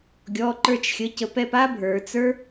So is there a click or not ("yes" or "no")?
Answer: yes